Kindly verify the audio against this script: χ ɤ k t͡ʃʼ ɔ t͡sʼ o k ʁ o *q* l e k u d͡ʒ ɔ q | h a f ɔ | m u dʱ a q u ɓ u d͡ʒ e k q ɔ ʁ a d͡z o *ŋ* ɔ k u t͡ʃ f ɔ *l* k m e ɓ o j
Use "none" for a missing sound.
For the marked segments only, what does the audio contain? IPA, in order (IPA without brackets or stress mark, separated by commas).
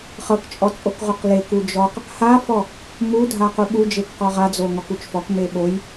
q, ŋ, none